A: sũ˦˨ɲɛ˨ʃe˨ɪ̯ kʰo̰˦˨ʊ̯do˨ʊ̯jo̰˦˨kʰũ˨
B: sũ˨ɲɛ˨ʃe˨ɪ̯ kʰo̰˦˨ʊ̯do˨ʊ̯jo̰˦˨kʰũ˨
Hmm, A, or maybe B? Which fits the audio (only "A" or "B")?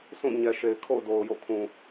A